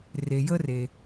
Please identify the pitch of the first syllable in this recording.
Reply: low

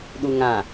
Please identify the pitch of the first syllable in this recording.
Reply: low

